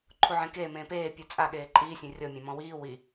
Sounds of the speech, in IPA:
ǃʰ u ʕ ẽ k eː m ẽː p eː pʲ ɯ t͡sʼ a ɠ eː ǃʼ iː sʲ ẽ rʲ ɔ mʲ ã m ɔ̃ w iː w i

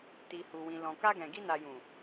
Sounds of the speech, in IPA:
t i˨ h u˨ w ĩ˨ l ɔ̃˨ k a˧ ɡ ɛ̃˨ ɡ i˧ n a˨ j ũ˨

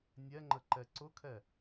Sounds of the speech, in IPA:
nʲ ɛ ŋ͡ǃ ə ǃ ɛ ǀ ʊ kʰ ɛ

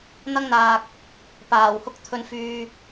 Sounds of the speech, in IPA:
n̪ ɐ˥ ŋ n̪ aː˧ k̚ | p aː˨˩ w h ʊ˥ k̚ t̪ʰ ɵ˧ n f yː˧

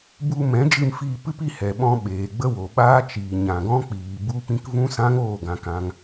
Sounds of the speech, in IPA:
b u˧ m ɛ̃˨˦ d͡ʒ ɨ˧ m f iː˧ p ɨ˦ p i˧ h ɛ˨ ɓ ɔ̃˧ ɓ eː˨ ɡ͡b ə˦ w o˨ ɓ aː˦ t͡ʃ iː˨ ɲ ã˨ ɡ ɔ̃˦ k͡p iː˨ b u˦ p ĩ˦ k v ũ˦ s ã˦ ŋ oː˦˨ ɡ ã˧ k ã˧ ŋ

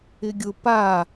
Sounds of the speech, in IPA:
ɪ ɡʲ ʊ p a

